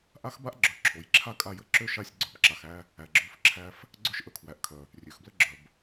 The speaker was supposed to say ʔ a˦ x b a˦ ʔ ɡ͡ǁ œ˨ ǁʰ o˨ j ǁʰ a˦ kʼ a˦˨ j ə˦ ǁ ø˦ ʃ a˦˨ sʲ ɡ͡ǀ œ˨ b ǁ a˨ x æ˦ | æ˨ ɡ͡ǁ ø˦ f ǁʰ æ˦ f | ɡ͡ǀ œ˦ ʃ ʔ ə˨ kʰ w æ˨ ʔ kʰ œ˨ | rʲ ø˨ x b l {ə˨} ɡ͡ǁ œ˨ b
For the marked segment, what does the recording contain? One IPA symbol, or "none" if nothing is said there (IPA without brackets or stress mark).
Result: ə˦